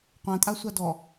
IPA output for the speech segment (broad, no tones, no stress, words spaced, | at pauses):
qʷãtʼasʷa dɔ